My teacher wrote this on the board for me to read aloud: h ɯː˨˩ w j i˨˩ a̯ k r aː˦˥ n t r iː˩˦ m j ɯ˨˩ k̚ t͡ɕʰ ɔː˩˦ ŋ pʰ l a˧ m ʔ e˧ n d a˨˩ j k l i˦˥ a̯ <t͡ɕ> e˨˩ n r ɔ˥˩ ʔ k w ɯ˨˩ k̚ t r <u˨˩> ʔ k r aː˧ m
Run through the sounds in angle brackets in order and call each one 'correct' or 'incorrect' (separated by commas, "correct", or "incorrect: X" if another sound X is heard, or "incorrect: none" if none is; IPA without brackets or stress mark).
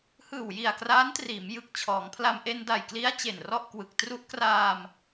correct, incorrect: u˦˥